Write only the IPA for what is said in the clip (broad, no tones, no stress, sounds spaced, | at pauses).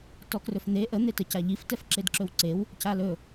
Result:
t ɔ k r ɵ f n̪ e ʔ ə n̪ e t ə c a ʎ i f t ɛ f ǁ e d ǁ ɵ w ǀ e w | c a l ɵ